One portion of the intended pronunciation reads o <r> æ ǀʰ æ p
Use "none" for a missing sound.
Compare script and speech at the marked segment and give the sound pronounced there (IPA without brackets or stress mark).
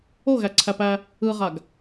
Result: ɣ